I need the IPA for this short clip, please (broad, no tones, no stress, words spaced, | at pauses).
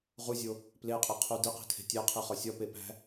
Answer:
ʁuzʲo | pleqʼeqʰu diqi̤tʰe̤ tʲæqʰiχɒ sʲɒpe pæ̤